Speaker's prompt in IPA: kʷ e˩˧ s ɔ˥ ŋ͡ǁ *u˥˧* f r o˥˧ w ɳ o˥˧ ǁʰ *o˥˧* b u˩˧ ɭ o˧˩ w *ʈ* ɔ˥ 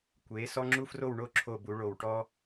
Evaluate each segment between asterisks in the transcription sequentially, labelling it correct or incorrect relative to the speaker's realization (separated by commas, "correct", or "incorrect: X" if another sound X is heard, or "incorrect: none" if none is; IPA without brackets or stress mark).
incorrect: u˥, incorrect: o˧˩, correct